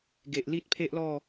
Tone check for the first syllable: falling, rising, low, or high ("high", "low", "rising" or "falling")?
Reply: low